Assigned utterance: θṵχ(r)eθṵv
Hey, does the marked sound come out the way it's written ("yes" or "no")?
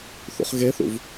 no